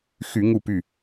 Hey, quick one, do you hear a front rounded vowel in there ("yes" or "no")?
yes